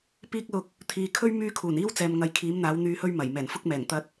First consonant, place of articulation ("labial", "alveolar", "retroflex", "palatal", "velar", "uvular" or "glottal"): labial